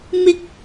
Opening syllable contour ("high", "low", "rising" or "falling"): high